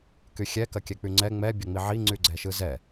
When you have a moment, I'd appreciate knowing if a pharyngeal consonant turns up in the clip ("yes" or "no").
yes